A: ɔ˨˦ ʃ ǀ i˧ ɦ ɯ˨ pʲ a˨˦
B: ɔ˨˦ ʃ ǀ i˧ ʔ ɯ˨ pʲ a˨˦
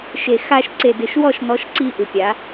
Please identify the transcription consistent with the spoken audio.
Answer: B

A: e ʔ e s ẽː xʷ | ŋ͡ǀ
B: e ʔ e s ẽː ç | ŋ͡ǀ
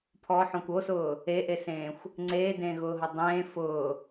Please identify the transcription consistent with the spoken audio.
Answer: A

